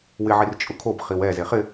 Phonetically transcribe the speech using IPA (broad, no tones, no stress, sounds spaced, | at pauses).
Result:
w ɪ ʕ i r t͡ʃʼ ʊ kʰ o b χ i w ɛ z e χ ɪ